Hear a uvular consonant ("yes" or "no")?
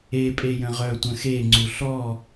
yes